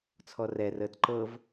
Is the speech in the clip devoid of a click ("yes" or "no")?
no